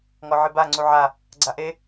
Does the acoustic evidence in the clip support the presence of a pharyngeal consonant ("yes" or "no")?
yes